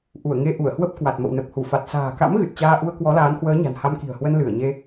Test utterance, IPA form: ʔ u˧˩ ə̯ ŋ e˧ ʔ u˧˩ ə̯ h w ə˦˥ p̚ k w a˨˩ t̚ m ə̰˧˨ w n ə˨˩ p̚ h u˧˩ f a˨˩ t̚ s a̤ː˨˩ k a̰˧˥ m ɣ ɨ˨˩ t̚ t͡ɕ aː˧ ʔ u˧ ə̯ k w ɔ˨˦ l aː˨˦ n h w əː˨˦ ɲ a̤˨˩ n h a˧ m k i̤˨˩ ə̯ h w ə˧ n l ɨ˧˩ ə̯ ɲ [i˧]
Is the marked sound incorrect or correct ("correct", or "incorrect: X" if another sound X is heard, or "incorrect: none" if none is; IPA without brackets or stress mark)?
incorrect: e˧